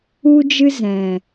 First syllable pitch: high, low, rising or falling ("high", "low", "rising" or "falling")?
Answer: high